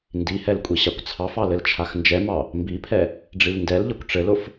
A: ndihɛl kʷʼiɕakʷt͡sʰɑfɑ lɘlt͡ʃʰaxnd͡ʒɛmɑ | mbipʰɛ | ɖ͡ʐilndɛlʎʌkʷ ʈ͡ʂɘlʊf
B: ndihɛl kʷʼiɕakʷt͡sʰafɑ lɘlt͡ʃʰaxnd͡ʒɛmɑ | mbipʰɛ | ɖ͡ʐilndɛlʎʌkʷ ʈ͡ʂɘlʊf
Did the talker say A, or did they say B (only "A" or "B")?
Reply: A